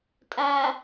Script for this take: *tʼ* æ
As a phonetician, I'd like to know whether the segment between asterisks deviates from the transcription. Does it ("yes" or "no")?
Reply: no